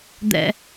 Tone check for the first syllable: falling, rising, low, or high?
low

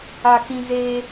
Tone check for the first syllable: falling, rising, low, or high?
low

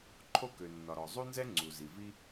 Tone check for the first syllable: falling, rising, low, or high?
high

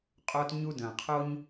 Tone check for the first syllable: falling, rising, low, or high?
high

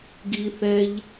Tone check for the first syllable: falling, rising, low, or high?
low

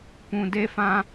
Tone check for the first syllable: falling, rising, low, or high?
low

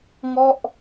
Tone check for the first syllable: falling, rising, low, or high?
falling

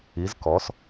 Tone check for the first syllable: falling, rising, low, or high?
rising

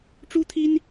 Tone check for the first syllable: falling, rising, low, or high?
high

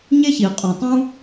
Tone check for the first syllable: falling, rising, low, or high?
high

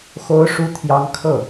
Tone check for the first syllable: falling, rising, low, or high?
high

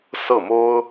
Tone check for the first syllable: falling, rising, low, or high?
falling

